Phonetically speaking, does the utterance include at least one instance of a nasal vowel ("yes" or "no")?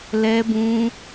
yes